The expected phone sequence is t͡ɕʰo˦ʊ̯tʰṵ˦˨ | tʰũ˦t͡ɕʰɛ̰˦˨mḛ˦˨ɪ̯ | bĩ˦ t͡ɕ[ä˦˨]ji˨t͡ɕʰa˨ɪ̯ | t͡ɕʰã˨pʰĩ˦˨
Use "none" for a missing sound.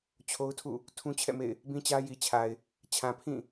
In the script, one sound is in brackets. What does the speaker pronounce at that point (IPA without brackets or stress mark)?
ä˦